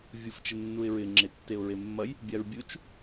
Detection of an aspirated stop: absent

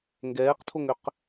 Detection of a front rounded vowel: present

